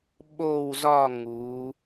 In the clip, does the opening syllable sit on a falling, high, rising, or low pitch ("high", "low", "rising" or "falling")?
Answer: falling